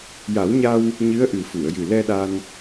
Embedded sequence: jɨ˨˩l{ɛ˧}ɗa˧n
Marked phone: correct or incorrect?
correct